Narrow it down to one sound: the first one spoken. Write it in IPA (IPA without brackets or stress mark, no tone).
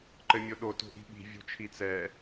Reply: ǃ